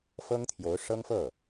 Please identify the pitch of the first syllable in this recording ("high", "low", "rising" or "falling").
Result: high